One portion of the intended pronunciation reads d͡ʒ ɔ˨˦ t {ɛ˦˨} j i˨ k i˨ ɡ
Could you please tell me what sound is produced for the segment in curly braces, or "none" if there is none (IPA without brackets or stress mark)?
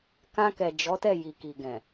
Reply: ɛ˦˨